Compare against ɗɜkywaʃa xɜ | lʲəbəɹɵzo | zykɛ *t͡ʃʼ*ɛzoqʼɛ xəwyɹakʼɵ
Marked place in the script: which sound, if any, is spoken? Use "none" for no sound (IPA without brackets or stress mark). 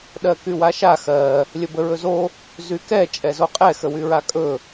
t͡ʃʼ